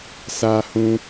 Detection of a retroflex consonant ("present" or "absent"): absent